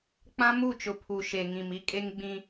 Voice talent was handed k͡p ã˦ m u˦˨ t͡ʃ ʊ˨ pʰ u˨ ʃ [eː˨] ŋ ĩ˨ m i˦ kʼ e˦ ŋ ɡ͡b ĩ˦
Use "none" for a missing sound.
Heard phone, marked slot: e˨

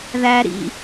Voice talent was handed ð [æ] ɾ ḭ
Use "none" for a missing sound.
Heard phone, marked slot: æ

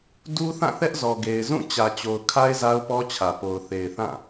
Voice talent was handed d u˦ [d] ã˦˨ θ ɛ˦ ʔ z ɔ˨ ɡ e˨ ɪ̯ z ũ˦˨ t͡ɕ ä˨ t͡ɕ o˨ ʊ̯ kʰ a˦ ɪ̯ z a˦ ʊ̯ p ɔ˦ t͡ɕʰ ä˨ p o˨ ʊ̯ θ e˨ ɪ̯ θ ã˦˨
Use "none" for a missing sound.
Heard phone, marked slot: θ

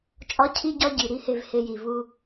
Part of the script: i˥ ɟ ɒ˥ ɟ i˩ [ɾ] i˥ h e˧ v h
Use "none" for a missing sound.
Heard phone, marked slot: ɾ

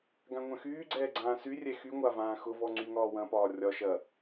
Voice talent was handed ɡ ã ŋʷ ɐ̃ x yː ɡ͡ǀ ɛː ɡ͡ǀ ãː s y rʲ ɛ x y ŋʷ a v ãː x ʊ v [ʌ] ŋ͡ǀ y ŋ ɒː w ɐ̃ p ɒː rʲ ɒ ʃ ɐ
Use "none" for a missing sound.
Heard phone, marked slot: ɔ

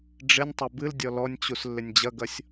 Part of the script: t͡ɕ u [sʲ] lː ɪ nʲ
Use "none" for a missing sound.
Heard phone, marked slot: s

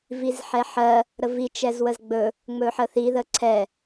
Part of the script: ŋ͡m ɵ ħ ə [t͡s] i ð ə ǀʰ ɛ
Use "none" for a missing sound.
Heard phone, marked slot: θ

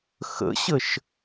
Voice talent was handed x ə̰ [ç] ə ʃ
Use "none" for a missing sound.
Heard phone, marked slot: ɕ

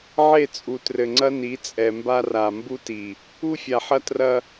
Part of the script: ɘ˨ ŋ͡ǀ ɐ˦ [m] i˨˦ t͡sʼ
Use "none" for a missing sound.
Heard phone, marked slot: n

